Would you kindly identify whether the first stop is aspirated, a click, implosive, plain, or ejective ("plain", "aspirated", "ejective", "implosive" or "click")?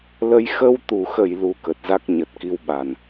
plain